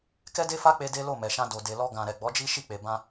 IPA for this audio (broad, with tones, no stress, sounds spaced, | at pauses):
k ɛ˦ d e˦ f a˦ k͡p e˧ d e˦ l o˦˨ m ɛ˨ ʃ ã˧ d o˨ d e˨ l ɔ˧ ɡ ã˨ ɾ ɛ˨ ɡ͡b ɔ˨˦ d͡ʒ i˦ ʃ i˦˨ k͡p e˨ b ã˧